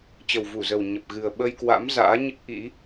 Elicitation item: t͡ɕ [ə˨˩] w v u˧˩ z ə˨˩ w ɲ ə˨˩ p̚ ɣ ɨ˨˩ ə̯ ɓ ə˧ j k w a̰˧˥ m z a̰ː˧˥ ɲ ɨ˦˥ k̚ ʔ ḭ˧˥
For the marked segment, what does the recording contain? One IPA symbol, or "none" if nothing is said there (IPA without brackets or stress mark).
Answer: ə˨˩